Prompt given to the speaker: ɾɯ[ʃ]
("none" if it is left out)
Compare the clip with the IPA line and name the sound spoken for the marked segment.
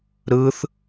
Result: θ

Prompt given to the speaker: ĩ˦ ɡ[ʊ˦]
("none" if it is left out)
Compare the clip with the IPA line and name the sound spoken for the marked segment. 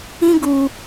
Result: u˦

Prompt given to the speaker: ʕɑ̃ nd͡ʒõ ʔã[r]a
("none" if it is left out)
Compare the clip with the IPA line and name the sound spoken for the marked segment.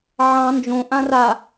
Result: r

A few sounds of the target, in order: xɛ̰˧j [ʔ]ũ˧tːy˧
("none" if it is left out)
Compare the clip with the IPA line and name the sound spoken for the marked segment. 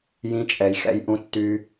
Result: ʔ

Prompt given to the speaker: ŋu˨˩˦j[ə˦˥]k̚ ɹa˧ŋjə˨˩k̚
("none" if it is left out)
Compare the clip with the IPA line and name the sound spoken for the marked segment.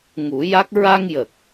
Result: a˦˥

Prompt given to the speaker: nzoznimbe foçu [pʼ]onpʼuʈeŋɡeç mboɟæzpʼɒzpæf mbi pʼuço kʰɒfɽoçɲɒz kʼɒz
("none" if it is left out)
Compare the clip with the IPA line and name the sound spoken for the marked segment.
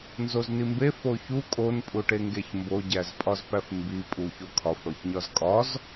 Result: kʼ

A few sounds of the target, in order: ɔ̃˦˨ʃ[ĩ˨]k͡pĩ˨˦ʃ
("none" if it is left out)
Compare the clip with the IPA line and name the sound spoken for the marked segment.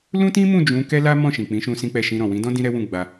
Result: ĩ˨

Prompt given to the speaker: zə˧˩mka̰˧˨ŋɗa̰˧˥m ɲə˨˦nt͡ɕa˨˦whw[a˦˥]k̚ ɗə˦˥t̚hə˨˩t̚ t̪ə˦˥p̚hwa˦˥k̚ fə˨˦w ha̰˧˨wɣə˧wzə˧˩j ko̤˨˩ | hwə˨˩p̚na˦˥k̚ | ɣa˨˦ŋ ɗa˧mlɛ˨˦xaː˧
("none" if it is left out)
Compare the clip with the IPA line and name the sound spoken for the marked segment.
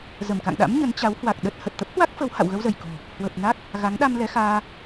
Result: a˨˩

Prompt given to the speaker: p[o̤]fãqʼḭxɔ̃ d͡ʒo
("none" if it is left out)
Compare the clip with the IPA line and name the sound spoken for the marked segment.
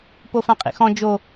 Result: o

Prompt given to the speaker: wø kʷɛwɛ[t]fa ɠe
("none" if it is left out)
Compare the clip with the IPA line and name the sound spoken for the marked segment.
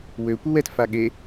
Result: t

